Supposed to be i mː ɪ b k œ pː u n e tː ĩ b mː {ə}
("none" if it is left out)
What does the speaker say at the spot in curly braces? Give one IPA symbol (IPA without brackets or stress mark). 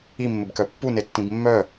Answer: œ